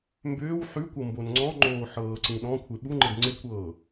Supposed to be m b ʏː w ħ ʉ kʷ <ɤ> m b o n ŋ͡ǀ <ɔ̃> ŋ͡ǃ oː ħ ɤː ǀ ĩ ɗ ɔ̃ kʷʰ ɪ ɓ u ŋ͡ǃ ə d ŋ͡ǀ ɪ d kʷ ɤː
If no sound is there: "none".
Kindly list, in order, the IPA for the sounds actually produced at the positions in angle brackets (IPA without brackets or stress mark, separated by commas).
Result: ɤ, ɔ̃